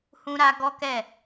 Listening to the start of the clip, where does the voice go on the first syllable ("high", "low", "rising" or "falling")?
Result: high